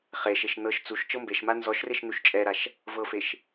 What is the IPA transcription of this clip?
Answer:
χeʃeʃ nɤʃ t͡suʃ t͡ʃɤmbeʃma nzɔʃreʃ nuʃt͡ʃʼɛɾaʃ | vɤfeʃ

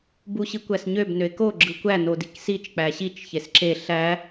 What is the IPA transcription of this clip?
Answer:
buɕikʷæsɲøb nøɪ̯ko ɡ͡ǁɯkʷæ nodiksit͡ʃ k͡pæɕit͡ʃ çesǁe ɬæ

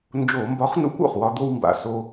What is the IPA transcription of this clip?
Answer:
nd͡ʒo˧˩˧mbɒ˨˥χnṵ˨˥kʷ o̰˩χwɒ˧ d̪o˧wmba̰˩ so˧

